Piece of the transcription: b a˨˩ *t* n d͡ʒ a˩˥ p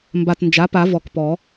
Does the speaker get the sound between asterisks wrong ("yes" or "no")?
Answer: no